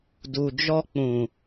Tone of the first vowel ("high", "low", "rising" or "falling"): low